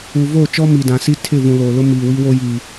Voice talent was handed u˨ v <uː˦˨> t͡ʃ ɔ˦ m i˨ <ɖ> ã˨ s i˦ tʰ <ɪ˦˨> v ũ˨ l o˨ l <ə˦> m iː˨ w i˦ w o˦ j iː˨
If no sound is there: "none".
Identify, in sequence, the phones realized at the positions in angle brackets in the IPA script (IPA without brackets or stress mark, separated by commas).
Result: oː˦˨, d, ɪ˦˨, ʊ˦